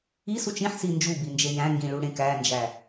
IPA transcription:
isut͡ʃ ĩħsi nd͡ʒubind͡ʒe jæ̃ ŋɡĩɭuɽẽ kænd͡ʒæ

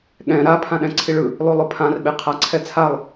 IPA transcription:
ɠɛ̃ ɾa pʰãɗɛ̃ǀʰiɭɯ | lˠulˠopʰãr ɓeqʰaǀʰɛt͡sʰalˠ

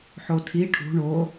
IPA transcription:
ħotʰi ʈʰṳ ɳo

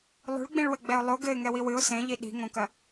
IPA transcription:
lˠṳɭɡ͡bĩɭwɘɡ͡bɛʊ̯ lˠo ɡɘɪ̯ŋɛwi wɨʊ̯ sẽʎi ɗi̤ŋõkɐ

